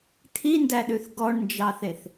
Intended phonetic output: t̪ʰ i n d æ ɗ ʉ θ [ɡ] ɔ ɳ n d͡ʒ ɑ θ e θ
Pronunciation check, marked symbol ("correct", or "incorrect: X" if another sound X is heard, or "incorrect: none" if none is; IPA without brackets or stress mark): correct